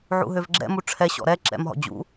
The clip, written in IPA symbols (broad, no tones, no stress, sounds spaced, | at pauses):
ʕ ṵ ɦ ø v ɡ͡ǁ ɛ̰ m u ʈ͡ʂʰ ɛ ɕ ɔ̰ ɾ ɛ ǁ ɛ̰ m ɦ ɔ̰ d͡ʑ ṵ